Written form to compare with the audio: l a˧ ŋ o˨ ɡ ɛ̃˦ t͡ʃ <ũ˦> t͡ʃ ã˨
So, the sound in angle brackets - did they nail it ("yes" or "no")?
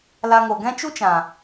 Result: no